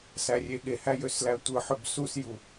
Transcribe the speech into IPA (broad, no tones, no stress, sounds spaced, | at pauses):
s æ rʲ e ɠ e h æ j ø s l æ tʷ ɯ ħ ø b s u s j u